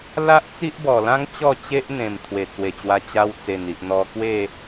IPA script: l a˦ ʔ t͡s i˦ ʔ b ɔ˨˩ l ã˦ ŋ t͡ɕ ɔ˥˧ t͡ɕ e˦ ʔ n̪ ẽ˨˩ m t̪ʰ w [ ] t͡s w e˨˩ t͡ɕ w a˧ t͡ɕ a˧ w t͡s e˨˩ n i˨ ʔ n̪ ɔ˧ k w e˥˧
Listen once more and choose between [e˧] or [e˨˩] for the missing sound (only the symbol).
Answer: e˨˩